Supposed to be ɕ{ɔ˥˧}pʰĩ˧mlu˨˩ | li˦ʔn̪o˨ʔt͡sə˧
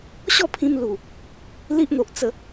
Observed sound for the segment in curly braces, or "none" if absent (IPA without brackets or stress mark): ɔ˥˧